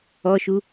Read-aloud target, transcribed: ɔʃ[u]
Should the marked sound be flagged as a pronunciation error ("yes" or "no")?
no